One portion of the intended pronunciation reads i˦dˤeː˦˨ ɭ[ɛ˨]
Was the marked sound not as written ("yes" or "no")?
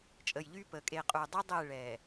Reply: no